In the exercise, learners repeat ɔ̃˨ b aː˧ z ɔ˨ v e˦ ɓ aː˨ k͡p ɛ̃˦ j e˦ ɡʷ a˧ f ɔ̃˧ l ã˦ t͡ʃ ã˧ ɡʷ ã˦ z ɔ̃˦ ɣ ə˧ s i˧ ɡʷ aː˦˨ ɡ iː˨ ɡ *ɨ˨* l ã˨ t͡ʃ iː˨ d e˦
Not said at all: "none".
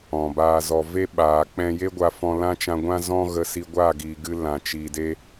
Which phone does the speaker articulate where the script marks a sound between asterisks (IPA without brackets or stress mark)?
ɨ˧